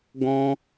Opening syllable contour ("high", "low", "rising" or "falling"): high